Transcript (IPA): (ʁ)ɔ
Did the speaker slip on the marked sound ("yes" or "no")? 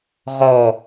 no